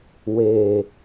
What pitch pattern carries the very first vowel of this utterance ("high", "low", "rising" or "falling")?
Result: low